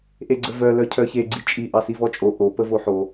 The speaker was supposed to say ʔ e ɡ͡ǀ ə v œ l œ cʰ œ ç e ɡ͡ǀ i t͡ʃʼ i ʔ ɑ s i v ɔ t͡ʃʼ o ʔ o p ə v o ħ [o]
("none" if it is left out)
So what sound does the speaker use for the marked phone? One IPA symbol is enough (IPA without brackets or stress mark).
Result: o